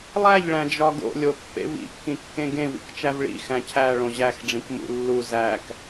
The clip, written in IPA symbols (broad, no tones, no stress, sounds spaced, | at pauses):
lˠ æ ʎ ɭ æ̃ d͡ʒ ɒ ɡ o̰ lʲ o pː ḛ v ḭ kː ĩ kː ẽ ɡ ẽ v ḭ k t͡ʃ æ v ɭ ḭ x æ̃ cʰ æ ɭ õ ʑ æ x ɖ͡ʐ ĩ k m ṵ lː u z æ k